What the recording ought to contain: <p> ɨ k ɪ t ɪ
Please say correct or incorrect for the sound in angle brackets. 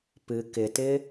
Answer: correct